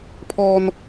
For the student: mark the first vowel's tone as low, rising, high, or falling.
high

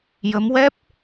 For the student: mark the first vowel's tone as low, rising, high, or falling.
rising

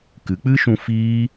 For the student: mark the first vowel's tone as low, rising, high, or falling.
rising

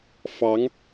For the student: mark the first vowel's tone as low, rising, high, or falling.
rising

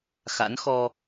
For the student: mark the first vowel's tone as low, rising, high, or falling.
rising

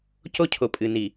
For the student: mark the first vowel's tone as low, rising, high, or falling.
high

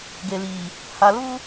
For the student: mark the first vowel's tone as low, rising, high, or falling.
low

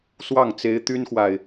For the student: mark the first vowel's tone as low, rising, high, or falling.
falling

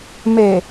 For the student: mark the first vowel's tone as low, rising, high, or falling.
low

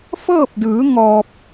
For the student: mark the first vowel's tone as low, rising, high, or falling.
falling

